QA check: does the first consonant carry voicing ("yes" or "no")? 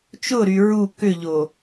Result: no